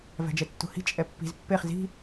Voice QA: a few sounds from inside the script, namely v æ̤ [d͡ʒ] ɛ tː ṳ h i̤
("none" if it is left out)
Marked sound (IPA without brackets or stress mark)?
d͡ʒ